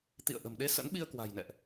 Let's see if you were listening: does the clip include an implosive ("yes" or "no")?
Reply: yes